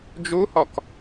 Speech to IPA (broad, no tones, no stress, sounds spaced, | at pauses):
d͡ʒ u h ɔ k